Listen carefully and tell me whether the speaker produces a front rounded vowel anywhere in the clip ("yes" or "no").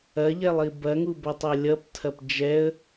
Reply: no